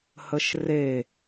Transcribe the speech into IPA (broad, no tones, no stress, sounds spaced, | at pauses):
h ə ʃ r e